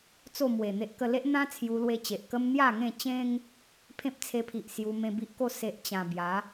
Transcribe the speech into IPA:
t͡s o˥˧ m w e˨˩ n̪ e˦ ʔ k ə˧ l e˦ ʔ n̪ ã˦ t͡sʰ j u˧ l w e˧ t͡ɕ e˨ ʔ k ə˦ m n̪ j a˥˧ ŋ ẽ˥˧ t͡ɕ ẽ˦ ŋ | pʰ ẽ˦ p̚ t͡sʰ e˧ pʰ i˨ ʔ s j u˧ m ẽ˧ b i˦ ʔ k o˥˧ s e˦ ʔ t͡ɕ ã˧ b j a˨˦

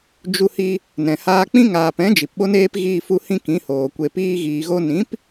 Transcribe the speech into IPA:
d͡ʒ u˧ h i˧ | n ɛ̃˨ h aː˧ k͡p ĩ˦ ŋ aː˨ p ɛ̃˨˦ d͡ʒ i˨ p ɓ o˦ n eː˦ p ɣ iː˧ f u˧ h ĩ˦ k ĩ˨˦ h oː˨ kʷ e˨ p iː˧ ɣ iː˨ ɣ o˧ n ĩ˨˦ p

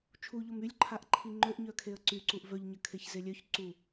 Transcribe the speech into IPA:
t͡ʃʰ u ʎ o m y lʲ ǃʰ a ʔ ǃʰ i ŋ͡ǃ ø ʔ ɲ œ kʰ e ə̯ ǀ y ǀ u ʔ v œ ʎ ɲ ə kʰ e ç z e lʲ œ ç ǀ u

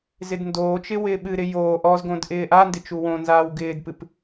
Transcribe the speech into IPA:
z ɪ d n d oː t͡ʃ ɪ w ɪː ɓ ɨ ɾ ɪ j oː ʔ ɔ z ɡ õ d ʔ ɪː ʔ a n d ɪ t͡ʃ u w õ n z aː w ɡ ɪː d p ɨ p

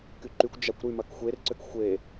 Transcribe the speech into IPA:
k y ǃ y kʷ d͡ʒ a kʷ ɾ y m ɐ k xʷ e r ǀ ʏ k xʷ e

